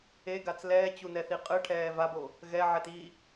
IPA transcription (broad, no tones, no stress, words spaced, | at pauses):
eɡat͡s lɛːt͡ɕunɛθi qʼɯʈʰɛː vabo | ɣɛʕɛt i